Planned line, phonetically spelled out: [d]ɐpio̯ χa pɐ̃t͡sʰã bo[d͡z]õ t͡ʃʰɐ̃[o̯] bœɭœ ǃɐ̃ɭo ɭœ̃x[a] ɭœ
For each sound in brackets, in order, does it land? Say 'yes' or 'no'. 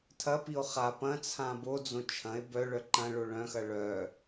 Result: no, yes, no, no

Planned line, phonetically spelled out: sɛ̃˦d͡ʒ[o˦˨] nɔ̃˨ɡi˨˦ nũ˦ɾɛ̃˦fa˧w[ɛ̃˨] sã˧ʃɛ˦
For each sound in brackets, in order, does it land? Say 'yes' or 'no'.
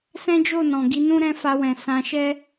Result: yes, yes

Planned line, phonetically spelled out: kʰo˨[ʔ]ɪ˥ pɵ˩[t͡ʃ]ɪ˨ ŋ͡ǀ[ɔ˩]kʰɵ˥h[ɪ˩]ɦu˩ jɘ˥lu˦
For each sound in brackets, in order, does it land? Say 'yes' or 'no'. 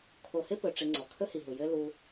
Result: no, no, yes, no

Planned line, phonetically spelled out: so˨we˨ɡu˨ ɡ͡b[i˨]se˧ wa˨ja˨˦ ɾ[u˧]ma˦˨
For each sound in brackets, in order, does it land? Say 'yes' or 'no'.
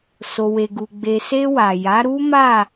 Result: no, no

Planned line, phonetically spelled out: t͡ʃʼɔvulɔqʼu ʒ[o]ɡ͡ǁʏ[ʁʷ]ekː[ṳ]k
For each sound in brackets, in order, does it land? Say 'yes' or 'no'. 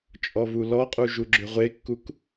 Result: no, yes, no

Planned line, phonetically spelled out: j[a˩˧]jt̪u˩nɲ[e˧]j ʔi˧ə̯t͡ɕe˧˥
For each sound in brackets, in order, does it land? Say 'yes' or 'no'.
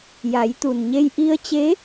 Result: yes, yes

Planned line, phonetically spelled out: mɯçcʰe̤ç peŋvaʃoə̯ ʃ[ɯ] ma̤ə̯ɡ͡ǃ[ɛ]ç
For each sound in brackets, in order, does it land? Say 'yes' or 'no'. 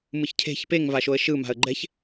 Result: yes, yes

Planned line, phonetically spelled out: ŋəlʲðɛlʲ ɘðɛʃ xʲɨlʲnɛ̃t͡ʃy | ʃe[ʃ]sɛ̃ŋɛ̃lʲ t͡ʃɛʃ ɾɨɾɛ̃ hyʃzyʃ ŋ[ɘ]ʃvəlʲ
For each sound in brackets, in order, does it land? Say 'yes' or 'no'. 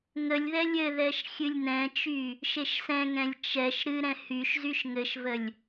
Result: yes, yes

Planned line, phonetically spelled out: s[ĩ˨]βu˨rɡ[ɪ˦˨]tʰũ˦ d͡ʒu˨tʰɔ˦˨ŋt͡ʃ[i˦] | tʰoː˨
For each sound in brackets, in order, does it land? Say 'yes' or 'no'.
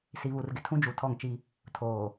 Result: no, no, yes

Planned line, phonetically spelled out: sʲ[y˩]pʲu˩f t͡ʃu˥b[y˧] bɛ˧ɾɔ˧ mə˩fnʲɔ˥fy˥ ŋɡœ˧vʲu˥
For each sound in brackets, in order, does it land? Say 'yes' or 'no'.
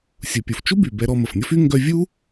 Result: no, no

